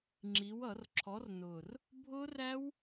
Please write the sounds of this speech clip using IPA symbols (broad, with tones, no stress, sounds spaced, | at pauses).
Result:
ŋ͡ǁ i˨˥ w ʌ˧˩˧ r ǁʰ ɔ˨˥ r n ʊː˨˩ r | bʱ ʊː˦˥ r æ˦˥ w